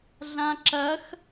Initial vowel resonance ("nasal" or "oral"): nasal